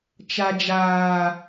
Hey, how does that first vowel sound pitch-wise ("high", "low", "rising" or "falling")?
low